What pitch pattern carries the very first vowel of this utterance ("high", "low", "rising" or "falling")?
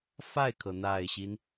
falling